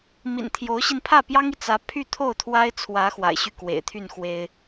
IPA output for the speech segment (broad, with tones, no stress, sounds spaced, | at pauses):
m ḭ˨˩ n t̪ʰ j o˧˥ ʊ̯ ɕ i˧ n pʰ ä˥˩ p j ɑ˥ ŋ i˨ t͡s ä˧˥ pʰ y˥˧ t̪ʰ o˥˩ ʊ̯ t̪ʰ w a˥ ɪ̯ t͡sʰ w ä˧˥ x w a̰˨˩ ɪ̯ ɕ y˥˩ k w ḛ˨˩ ɪ̯ t̪ʰ y˥˩ n x w e˥ ɪ̯